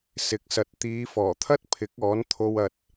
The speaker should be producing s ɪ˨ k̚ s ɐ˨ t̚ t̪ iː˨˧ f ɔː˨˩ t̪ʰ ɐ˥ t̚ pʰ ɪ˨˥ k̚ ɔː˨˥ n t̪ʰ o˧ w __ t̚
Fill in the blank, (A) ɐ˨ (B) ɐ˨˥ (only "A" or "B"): A